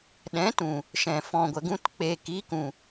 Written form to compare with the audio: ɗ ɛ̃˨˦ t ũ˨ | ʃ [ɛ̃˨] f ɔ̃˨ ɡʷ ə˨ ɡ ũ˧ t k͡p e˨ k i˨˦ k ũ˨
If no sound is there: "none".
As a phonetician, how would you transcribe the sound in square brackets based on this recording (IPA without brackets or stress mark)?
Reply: ɛ̃˨